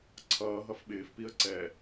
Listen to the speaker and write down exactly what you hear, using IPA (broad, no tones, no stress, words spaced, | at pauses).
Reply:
ǀʰʌːɦʌf ɓɪːfpiə̯ ǀɛ